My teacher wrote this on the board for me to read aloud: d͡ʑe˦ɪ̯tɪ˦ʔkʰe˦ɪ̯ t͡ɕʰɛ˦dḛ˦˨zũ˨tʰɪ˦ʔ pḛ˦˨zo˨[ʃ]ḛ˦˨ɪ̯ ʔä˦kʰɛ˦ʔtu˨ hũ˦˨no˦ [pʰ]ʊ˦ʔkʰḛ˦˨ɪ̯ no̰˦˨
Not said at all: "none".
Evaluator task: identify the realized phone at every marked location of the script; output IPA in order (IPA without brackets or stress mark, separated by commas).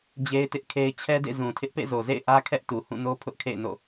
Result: z, pʰ